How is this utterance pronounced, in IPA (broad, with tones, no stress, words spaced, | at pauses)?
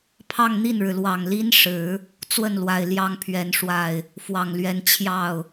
pʰɑ˥˧ŋn̪i˥˩nɻɻ̩˩lwɑ˨˩ŋ li˥nʂɻ̩˨˩˦ | t͡swə˥˩nlwa˨˩ɪ̯ ljɑ˥ŋpʰɥɛ˧˥nʂwa˥˩ɪ̯ | fwɑ˨˩ŋlɥɛ˧˥n t͡ɕʰjɑ˥˩ʊ̯